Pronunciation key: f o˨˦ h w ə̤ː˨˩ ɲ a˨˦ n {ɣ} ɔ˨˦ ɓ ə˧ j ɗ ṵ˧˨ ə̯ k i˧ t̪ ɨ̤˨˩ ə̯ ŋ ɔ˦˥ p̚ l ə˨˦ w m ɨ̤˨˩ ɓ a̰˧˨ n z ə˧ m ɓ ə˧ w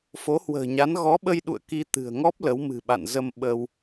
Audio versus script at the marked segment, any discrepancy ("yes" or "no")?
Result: no